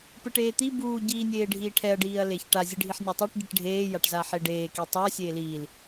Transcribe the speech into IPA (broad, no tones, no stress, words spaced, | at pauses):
pɯʈeːt̪i buː ɟiːnʲeːɖʱiːʈʰɛɐ̯ ɖiːɐ̯leçʈa zʲɯɖʱiħnʲatˤeʈ ɟiʈɖʱeː jaʈzaħeɖeː kitˤa sʲeːliːl